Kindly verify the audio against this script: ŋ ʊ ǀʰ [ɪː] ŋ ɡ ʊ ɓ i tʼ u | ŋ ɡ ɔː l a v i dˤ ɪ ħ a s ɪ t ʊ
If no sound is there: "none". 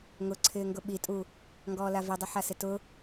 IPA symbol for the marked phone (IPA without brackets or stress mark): ɪː